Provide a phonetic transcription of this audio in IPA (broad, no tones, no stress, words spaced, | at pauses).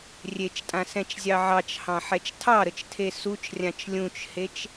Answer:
rʲet͡ʃtʼãsɛ̃t͡ʃzʲɑ ʕɑt͡ʃhɑ̃ħɛt͡ʃ tʰɑɾət͡ʃtʰe sut͡ʃrʲãt͡ʃ lʲũt͡ʃhet͡ʃ